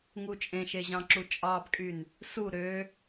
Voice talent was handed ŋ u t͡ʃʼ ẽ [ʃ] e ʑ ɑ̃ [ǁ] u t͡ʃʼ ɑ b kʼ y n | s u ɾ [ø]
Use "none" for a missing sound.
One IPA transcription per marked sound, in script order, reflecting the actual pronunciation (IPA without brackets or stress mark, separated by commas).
ʃ, ǁ, ø